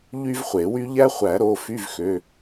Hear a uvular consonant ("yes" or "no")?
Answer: yes